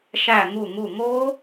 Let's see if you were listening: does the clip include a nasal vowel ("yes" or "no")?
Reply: no